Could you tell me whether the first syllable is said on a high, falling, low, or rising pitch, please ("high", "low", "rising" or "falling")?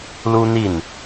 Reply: high